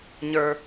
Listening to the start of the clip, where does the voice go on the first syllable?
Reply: low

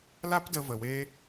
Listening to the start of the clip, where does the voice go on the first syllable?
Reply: high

